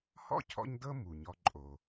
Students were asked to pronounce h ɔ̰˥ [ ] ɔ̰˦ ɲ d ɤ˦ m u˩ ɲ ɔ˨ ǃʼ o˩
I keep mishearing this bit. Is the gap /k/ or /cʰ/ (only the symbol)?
cʰ